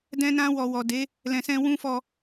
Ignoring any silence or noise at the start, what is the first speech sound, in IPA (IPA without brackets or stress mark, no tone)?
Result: d